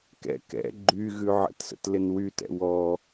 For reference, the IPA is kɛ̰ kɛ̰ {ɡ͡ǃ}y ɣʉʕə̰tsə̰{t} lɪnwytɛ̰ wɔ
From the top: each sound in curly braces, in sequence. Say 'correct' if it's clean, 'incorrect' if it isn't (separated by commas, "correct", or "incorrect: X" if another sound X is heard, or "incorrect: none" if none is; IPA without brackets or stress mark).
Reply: correct, correct